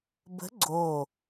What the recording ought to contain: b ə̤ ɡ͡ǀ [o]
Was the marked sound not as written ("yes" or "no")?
no